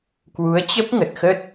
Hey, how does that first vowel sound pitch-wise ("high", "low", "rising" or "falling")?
rising